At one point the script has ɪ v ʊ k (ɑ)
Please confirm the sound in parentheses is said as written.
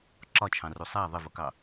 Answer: yes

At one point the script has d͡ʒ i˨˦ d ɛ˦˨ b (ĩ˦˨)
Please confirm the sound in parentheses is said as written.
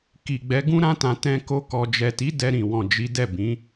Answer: no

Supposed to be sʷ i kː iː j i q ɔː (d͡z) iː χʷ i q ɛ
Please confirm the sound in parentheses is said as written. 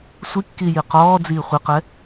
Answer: yes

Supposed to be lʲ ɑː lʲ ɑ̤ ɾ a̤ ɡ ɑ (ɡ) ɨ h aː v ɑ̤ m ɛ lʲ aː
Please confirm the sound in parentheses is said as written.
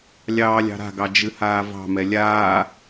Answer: no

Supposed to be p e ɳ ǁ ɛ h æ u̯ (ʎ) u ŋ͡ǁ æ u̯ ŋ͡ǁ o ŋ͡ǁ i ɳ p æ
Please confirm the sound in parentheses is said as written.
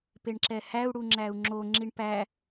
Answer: no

